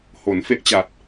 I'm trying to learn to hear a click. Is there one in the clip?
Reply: no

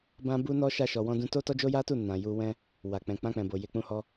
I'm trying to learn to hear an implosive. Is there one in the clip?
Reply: no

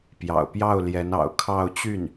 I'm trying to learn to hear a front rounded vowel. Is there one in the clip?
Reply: yes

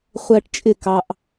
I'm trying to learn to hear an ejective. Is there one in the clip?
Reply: yes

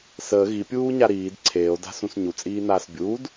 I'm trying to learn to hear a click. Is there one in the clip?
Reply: yes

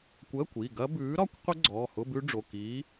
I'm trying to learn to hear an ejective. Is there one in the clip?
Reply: no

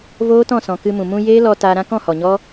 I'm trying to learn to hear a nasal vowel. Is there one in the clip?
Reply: yes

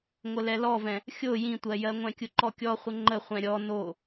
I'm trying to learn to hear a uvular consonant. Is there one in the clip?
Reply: yes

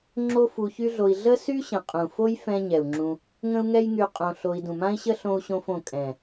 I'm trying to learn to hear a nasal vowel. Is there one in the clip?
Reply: yes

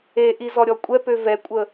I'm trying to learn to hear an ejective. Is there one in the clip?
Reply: yes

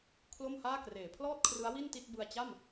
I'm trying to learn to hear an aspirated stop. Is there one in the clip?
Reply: yes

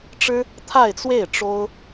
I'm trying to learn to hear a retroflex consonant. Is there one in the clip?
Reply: yes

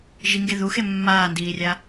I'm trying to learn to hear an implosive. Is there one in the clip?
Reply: no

